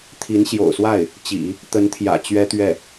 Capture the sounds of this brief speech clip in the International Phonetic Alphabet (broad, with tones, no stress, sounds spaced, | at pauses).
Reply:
t̪ʰ i˧˥ n ɕ j o̰˨˩ ʊ̯ s w a˥˩ ɪ̯ | t͡ɕ ḭ˨˩˦ | t̪ ə˧˥ n t̪ʰ j ä̰˨˩ t͡ɕ ɥ ɛ˥ t̪ ɥ ɛ˥˩